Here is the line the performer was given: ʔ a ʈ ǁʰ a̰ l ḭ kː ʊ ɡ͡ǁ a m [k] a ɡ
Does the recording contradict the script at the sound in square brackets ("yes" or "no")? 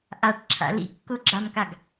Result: no